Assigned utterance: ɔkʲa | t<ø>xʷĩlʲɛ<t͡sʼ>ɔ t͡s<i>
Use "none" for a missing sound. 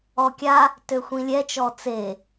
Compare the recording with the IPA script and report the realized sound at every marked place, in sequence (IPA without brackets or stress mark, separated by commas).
ø, t͡ʃ, e